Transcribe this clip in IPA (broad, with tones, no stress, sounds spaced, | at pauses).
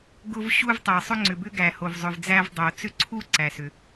ɡ ʊ˧ v ɕ u˧ v tˤ ɛ˩ sˤ ʏ˧ ŋ͡ǀ ʏ˩ b ʏ˧ ɡ æ˩ h o˩ v zˤ ʏ˩ v d͡z æ˧ v dˤ o˩ t͡s ʏ˧ ǀʰ u˧ ǀ æ˩ s ʏ˩